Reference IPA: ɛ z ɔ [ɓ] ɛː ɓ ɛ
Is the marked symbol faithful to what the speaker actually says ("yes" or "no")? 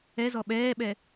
yes